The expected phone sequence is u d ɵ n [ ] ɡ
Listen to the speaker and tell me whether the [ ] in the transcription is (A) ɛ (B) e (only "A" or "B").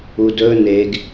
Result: B